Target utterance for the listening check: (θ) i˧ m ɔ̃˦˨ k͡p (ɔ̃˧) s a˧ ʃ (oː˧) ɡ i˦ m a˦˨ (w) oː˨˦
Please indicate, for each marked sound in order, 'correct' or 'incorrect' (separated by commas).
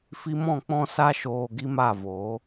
incorrect, correct, incorrect, incorrect